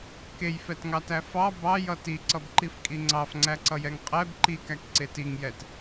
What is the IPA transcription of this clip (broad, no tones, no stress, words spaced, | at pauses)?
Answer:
kejfɛtŋɑtæ fɑ bɑjʌ tiǀʌbǃifkʼi ŋ͡ǀɑfŋ͡ǀæǀʌjɛŋ qʼɛb ǃikækǀe tiŋjɛt